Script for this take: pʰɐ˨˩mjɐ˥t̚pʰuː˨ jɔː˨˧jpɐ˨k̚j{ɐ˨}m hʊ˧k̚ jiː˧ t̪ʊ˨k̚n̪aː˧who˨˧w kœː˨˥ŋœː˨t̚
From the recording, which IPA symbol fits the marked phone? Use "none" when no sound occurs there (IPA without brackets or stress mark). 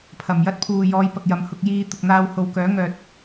ɐ˨